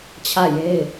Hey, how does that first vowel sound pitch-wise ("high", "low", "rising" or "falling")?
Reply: falling